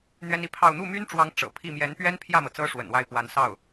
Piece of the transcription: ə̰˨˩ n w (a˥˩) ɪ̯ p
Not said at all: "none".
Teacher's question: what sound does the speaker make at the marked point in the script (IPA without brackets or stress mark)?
a˥˩